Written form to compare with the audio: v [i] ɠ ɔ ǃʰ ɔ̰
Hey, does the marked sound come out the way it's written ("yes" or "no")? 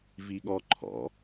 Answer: yes